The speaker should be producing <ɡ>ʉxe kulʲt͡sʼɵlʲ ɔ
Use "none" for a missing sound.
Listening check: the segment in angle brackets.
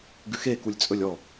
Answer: ɡ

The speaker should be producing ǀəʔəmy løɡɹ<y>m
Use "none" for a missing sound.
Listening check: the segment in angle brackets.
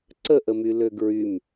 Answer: y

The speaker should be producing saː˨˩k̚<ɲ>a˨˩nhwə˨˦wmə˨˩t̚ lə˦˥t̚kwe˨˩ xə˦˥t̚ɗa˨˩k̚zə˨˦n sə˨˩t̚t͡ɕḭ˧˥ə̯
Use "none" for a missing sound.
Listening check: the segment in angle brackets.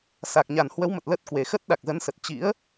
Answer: ɲ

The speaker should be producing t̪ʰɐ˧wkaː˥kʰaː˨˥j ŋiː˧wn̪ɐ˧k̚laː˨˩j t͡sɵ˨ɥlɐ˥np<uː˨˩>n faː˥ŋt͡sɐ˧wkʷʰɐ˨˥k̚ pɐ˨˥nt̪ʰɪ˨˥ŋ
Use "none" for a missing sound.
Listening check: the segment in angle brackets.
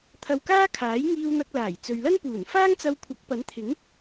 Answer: uː˨˩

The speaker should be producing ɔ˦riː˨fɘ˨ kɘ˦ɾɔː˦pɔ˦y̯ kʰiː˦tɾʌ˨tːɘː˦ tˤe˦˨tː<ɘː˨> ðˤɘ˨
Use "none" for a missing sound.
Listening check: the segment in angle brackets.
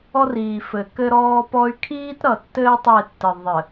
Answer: ɘ˨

